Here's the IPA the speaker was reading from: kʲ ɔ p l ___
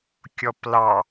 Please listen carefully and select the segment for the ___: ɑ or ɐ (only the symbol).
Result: ɑ